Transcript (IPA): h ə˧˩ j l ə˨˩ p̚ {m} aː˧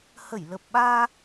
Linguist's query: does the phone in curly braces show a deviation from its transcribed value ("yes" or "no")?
yes